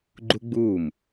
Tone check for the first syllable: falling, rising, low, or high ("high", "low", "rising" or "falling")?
high